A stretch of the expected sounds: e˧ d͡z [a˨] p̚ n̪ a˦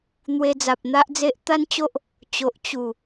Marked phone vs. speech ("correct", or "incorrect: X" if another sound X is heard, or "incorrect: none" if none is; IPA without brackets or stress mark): correct